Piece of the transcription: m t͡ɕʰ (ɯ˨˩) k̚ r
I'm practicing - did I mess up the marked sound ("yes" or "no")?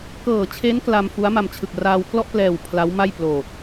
no